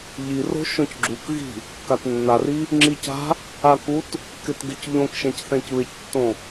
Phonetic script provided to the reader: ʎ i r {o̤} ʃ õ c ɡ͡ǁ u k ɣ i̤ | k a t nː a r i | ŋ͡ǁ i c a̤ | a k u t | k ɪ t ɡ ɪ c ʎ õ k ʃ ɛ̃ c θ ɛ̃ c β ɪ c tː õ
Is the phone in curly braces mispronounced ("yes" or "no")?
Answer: no